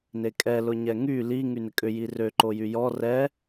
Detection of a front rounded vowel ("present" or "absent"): present